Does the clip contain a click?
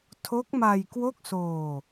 no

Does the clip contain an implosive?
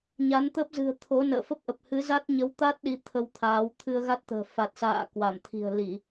yes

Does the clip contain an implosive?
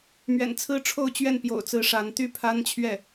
no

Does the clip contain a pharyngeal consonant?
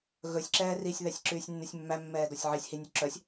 yes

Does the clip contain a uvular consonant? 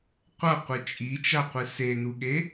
yes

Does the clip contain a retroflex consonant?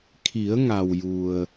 no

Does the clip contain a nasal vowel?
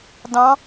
yes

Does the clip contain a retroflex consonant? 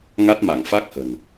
no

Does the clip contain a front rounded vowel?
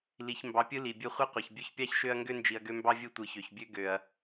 yes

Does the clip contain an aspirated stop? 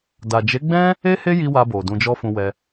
no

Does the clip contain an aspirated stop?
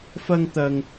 no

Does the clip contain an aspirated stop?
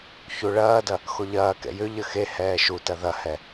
no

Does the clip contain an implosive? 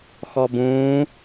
no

